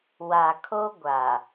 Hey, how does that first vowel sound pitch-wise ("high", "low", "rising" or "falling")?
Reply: low